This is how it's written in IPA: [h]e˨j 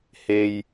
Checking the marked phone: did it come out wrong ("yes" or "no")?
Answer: no